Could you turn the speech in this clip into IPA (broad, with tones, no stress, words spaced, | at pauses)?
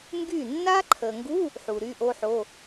ŋɡy˥˩ nːa˦˥ǃʰə˨ŋɡu˧˥˧ | ħu˨ɾy˧˥˧ʔo˦˥ħo˧˥˧